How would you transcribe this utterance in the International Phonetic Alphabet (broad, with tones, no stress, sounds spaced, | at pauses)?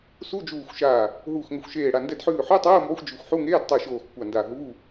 s u˧˥˧ d͡ʒ uː˧˩ xʷ ʃ aː˧˩ | ɦ uː˧˩ x ŋ ə˧˩ xʷ ʃ eː˧˩ ɽ a˧˩ n d ɛ˧˩ d ħ ʉː˧˩ ħ o˧˥˧ tˤ oː˧˥˧ m b ɒ˧˥˧ xʷ d͡ʒ ʉ˧˩ xʷ ħ u˧˥˧ ŋ eː˧˥˧ d tˤ ʉ˧˩ ʃ oː˧˩ x kʷ a˧˩ n d a˧˩ ɦ uː˧˥˧